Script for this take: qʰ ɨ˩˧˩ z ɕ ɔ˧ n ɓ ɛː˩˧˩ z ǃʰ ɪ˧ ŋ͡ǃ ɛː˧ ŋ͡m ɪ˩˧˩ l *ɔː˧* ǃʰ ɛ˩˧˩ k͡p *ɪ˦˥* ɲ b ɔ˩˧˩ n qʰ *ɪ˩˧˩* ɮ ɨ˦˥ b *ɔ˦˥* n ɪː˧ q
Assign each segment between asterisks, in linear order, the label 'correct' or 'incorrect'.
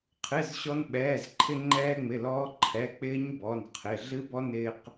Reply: correct, incorrect: ɪː˦˥, correct, correct

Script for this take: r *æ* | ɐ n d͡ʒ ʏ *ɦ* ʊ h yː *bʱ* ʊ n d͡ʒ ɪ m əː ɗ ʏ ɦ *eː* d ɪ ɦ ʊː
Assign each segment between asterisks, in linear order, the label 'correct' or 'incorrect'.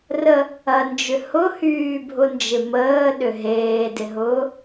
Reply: incorrect: ə, incorrect: h, correct, correct

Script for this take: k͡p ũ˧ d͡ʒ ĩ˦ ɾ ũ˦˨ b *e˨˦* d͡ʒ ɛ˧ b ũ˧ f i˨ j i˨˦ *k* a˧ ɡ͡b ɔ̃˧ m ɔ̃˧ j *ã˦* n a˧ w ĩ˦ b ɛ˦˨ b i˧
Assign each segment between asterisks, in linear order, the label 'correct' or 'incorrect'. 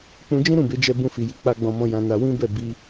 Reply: correct, incorrect: k͡p, incorrect: ã˧

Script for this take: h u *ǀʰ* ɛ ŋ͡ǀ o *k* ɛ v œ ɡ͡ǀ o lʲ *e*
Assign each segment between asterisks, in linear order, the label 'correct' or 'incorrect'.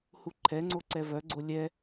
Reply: incorrect: ǃʰ, incorrect: ǀ, incorrect: ɛ

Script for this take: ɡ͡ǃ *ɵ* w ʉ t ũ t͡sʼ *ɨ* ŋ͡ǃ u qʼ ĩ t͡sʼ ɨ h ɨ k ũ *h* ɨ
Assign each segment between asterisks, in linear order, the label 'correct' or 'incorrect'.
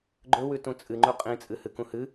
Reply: correct, correct, correct

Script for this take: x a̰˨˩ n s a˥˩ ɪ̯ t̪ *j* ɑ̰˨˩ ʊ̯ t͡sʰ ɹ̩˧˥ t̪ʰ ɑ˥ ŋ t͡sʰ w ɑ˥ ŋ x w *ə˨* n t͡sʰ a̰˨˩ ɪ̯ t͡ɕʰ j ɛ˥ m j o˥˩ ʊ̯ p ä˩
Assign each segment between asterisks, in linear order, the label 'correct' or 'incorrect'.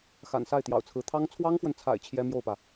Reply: correct, correct

